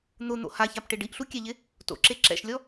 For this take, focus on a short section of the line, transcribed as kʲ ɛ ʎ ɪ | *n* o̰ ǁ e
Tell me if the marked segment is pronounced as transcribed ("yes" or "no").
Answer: no